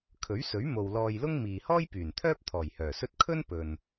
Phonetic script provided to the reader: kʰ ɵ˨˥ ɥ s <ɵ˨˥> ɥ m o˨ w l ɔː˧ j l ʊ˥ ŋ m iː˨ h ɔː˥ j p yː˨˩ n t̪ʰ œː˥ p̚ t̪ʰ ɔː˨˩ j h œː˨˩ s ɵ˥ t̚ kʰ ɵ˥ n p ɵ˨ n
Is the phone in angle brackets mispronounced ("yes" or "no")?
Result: no